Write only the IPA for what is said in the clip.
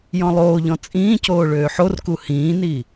j ɔ̃ lˠ oː ʎ ɔ̃ t͡sʼ ĩː c oː ɭ øː ħ o r k u h ĩː n i

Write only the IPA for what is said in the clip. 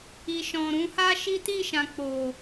i˨ ʃ ɔ̃˨ ɾ ũ˧ h a˦ ʃ i˦ t i˦˨ ʃ ã˨ k͡p o˨

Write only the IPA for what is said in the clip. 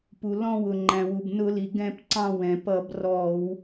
p u˩ l ɔ̃˦˨ w ʊ˩ ŋ͡ǃ æ̃˩ w u˩ b n ʊ˧˩˧ l i˩ ɡ ɛ̃˦˨ p ǀ ɑ̃˦˨ w ɛ̃˩ p ʌ˧˩˧ b r ɔ˧˩˧ w

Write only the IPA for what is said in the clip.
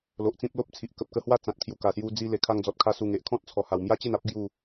l o˨ ʔ t͡s ĩ˦ p̚ l o˦ p̚ t͡sʰ i˨ ʔ k ə˨ p̚ k ə˧ h w a˥˧ t͡s ã˨ t̚ kʰ j u˨˩ k a˨˩ s j u˧ d͡z i˧ l e˨˩ kʰ a˧ ŋ d͡z ɔ˨ t̚ kʰ a˧ s u˨˩ ŋ e˨ ʔ kʰ ɔ̃˦ t̚ t͡sʰ ɔ˨˩ h a˨˩ w m j a˦ t͡ɕ e˥˧ n a˦ p̚ ɡ j u˥˧

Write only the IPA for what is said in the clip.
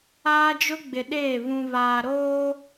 aː˦ d͡ʒ ʊ˦ ɡ͡b ɪ˨ ɗ eː˦˨ β ũ˨ β aː˨ ɾ oː˦

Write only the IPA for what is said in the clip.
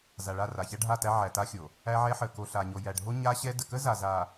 z a˨ ɭ a˦˨ r a˨ ç æ˦ ɖʱ a˦˨ t æ˦ ʕ æ˨ t a˦ xʲ o˨ | æ˦ ʕ ɛ˦ ħ ə˨ k o˨ ɬ a˨ ɲ o˨ j æ˨ ɖʱ o˦ ɲ a˦ ɕ ɛ˦ d ə˨ k ə˦ z a˨ z a˨

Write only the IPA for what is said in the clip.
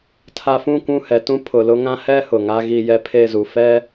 tʰ a˨ f ũ˦˨ kʷ ũ˦˨ h ɛ˨ t ũ˦ pʰ ʊ˨ l ʊ˦ ŋ ã˦ h ɛ˦ h ʊ˨ ŋ a˦ ɣ i˨ j ɛ˦ pʰ e˦˨ z u˨ f ɛ˦

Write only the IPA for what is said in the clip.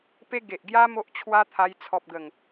p e˦ ɡ e˨ ʔ ɡ j a˦ m o˦ ʔ t͡ɕʰ w a˦ t̪ʰ a˧ j t͡sʰ ɔ˨ p̚ ɡ ə˨˩ ŋ

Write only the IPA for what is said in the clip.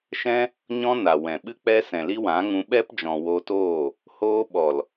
ʃ ɛ̃˦ | ɲ ɔ̃˦ n a˨ w ɛ̃˨ ɓ ɨ˦ k͡p ɛ˦ s ɛ̃˨ l i˦ w ã˨˦ ŋ ũ˧ ɓ ɛ˦ p d͡ʒ ɔ̃˨ w o˧ t oː˦˨ | h oː˧ ɓ ɔ˨ l

